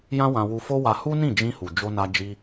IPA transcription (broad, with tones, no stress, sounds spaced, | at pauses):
j ã˦ w ã˧ w u˧ f o˦ w a˧ h u˦ n ĩ˦˨ d͡ʒ ĩ˧ h u˨ d͡ʒ o˧ n a˧ d͡ʒ i˧